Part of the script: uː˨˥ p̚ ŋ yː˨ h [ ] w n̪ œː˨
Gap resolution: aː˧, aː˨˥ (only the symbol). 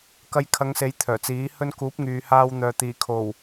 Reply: aː˧